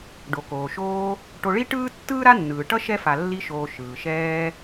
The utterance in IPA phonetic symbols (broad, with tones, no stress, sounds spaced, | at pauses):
ɖ o˩ k oː˩ ʃ oː˦ | ʈ o˨ ɭ i˦ ʈ ɯː˥ tː ɯː˥ ɾ a˥ nː ɯː˩ ʈ ʌ˥ ʃ ɛ˥ f a˨ lː i˦ ʃ oː˨ ʃ ɯː˩ ʃ ɛː˦